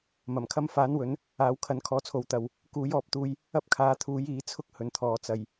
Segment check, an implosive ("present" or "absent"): absent